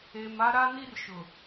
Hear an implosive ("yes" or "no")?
no